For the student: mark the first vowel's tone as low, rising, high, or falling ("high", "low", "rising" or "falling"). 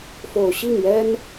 low